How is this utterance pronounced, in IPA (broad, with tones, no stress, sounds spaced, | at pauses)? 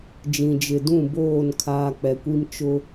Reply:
d͡ʒ ĩ˨ d͡ʒ ɪ˨ d ũ˦˨ b oː˦˨ n kʰ aː˨ k͡p ɛ˨ kʷ i˦ m t͡ʃ ʊ˦